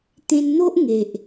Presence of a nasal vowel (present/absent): present